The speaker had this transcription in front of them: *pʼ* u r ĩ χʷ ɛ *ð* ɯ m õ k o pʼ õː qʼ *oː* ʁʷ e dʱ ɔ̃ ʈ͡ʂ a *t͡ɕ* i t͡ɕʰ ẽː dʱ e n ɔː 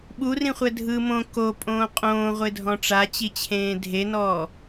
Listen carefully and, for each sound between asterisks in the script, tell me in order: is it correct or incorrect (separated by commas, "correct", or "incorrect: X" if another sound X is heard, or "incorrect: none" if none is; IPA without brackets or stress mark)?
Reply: incorrect: ɓ, incorrect: dʱ, incorrect: õː, correct